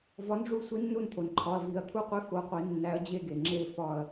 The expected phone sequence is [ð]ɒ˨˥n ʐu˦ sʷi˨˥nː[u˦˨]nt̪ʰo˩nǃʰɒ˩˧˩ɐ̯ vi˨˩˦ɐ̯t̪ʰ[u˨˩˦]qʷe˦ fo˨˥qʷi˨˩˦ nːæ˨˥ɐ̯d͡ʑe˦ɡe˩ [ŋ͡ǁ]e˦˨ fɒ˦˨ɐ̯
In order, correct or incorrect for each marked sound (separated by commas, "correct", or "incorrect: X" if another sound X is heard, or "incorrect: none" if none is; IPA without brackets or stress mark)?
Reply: incorrect: v, correct, incorrect: u˦˨, correct